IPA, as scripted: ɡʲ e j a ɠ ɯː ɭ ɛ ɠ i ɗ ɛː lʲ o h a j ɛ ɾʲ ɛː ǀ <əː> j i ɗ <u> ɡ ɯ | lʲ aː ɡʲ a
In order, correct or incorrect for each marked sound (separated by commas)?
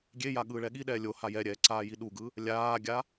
incorrect, correct